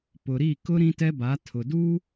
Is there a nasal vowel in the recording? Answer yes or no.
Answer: yes